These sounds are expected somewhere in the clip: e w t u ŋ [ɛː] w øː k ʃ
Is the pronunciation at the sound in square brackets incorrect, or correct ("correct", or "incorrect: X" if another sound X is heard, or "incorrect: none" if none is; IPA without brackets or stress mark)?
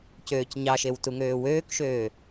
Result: incorrect: øː